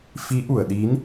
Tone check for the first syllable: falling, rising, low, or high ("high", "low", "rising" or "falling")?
rising